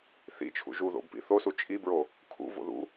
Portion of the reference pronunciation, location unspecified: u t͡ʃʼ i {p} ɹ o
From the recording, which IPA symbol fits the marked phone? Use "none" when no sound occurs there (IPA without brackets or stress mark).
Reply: b